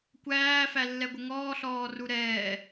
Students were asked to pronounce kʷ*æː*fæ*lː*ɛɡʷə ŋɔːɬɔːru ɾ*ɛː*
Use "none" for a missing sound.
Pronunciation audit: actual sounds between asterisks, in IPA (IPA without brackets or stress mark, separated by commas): æː, lː, ɛː